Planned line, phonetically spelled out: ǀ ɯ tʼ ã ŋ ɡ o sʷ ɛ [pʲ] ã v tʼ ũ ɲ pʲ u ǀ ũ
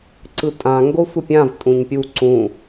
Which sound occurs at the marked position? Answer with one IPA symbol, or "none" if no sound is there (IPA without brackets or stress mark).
pʲ